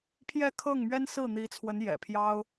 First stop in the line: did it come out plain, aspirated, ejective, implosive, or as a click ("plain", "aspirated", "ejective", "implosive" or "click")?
aspirated